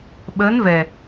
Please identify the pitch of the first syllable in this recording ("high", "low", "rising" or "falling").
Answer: rising